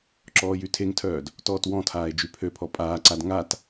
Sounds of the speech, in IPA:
ǁɔːjytʰeŋtʰœːd | tɔːtwɔ̃tʰaːe̯ d͡ʒypʰøpʰɔ pʼaːǀad ŋat

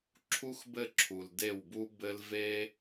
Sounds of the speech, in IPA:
ǁʰu˦xbɘ˦˨ ǁʰu˨l de˦˨wbu˦bɘ˦l ve˦

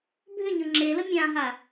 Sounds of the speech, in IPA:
bʱʏ ɲɤŋ͡ǁelə mʲãɦa

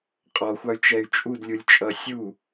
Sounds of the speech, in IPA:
qʼɔxʷɑy̯t͡ʃɛy̯ t͡ʃʼudlʲulʲt͡ʃʼʌ sʲu

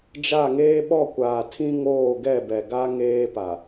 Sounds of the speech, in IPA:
d͡ʒa˦˨ŋeː˦ ɓɔ˦˨kʷaː˨tʰĩ˦ŋoː˦˨ ɡɛ˦˨bɛ˨ɡa˦ ŋeː˦pa˨

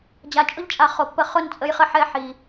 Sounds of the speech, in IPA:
d͡ʑa˨t͡ʃʼʊ˦ʎt͡ʃʼa˨ χo˨pːə˧ χʊ˦˨nt͡sʼə˧jχə˧ħɛ˦˨ ħi˨

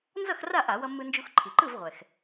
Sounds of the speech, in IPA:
nzʌ˥˨xra˥˨ ʔa˧˩˧wʌ˧mːɯ˧nd͡ʒu˧x ǃʰi˩ǃɯ˥˨vʁʷɛ˩x

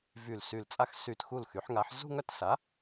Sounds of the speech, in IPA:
vy˧˩l sy˧˩lt͡sʼa˥˧x sy˧˩txu˥˩l xy˩˥ħŋa˩˥ħ zṳ˥˧ŋœ˥˧t sa˩˥

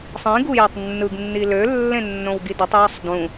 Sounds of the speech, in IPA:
sˤĩɡu jøtˤnːɯɡnːi lølːẽ nːõwɡidotˤ jisˤdũ

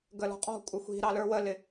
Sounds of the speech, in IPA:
ɡəlɔ̤qʼɔ̤ kʷʼɪxʷi̤ ɾɑlə˞wəlɪ

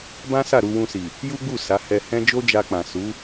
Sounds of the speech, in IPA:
bã˦sa˦˨ ɾu˧wũ˧si˨ | ju˦ɡ͡bu˦˨ sa˨˦ hɛ˧hɛ̃˦ d͡ʒo˦d͡ʒa˧k͡pã˨ su˨˦

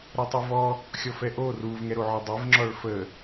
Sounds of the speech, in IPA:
ɾɛtˤuvɔ | xʲɔfɛʔo ruv ŋɛɾoʕɔdˤev ŋ͡ǁɔɭfə

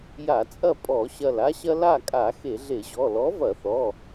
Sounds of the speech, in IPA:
ja˧˩˧t͡sʼɐ˥˨ pʼɔ˧˩˧ɕɐ˧˩l a˥ɕɐ˥ la˥˨kʼa˧˩˧ xe˧˩˧ɮe˧˩˧ʑɔ˩˧˩ lɔ˨˥vɐ˧˩˧θɔ˩˧˩

